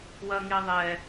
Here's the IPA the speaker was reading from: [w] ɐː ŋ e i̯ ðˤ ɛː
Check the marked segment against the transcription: correct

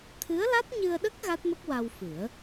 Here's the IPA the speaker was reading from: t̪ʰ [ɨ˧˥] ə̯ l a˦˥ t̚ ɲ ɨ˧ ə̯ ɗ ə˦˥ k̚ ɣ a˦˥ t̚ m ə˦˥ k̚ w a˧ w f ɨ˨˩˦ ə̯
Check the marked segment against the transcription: correct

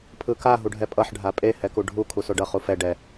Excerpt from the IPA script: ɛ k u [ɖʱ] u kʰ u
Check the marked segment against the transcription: correct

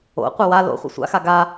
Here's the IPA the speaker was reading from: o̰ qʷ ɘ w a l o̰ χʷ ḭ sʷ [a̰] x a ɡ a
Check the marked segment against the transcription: correct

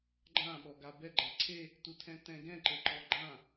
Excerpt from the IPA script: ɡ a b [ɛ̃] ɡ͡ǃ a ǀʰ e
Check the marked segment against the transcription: incorrect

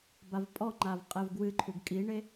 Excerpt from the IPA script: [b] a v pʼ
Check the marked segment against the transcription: correct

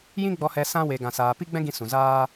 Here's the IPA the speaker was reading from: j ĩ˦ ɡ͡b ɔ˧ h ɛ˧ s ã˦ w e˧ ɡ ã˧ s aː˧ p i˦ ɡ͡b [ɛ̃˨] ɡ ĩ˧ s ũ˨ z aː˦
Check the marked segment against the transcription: incorrect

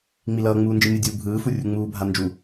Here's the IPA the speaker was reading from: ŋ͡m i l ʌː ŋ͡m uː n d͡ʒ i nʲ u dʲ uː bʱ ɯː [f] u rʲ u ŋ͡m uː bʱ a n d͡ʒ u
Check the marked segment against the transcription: correct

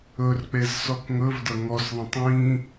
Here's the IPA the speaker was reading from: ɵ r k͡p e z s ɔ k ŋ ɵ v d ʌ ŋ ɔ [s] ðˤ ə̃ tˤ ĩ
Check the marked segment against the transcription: correct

